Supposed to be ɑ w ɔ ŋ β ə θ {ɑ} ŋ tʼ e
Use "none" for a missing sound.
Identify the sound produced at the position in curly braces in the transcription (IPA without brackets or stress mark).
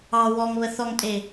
ɔ